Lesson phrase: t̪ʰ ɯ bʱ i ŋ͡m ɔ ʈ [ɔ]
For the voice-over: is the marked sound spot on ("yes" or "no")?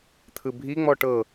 no